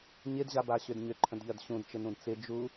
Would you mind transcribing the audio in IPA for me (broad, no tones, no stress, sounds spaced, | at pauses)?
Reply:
ɲ ɪ d ʑ a b a ɕ ʏ d ɲ ʏ ǃʰ ə̃ d ʎ ɜ d ɕ ũ d t͡ʃ ɪ n ũ d t͡s ɪ d͡ʒ u